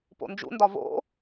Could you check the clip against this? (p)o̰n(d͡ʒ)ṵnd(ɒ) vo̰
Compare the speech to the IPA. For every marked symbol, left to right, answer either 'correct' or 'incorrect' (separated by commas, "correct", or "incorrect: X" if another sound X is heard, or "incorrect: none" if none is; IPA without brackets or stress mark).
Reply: correct, correct, correct